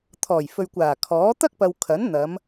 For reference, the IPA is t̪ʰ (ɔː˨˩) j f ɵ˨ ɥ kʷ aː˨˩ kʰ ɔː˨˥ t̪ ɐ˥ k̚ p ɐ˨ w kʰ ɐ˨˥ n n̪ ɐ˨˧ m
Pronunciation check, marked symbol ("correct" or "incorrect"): correct